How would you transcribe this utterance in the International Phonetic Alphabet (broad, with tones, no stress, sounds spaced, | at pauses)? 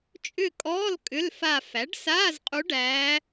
t͡ʃʼ ʏ˦˨ kʼ ɔː˧˥˧ l kʼ ʏ˧˥˧ l f a˦˨ f æ˩˥ ɖ s aː˧˥˧ z qʼ u˧˥ ɖ æː˧˥